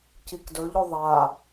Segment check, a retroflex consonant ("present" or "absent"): absent